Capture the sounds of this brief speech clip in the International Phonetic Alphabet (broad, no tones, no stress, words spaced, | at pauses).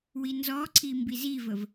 winzɔǀʰi mbizivəv